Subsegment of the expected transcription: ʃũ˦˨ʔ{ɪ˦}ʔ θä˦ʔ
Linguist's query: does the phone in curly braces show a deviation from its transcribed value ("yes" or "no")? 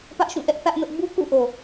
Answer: yes